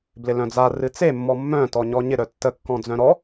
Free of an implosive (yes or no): yes